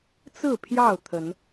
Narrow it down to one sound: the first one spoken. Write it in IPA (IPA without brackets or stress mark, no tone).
t͡s